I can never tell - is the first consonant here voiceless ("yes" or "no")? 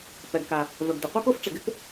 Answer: yes